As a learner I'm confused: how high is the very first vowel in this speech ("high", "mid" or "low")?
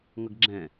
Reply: mid